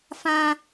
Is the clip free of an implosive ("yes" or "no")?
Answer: yes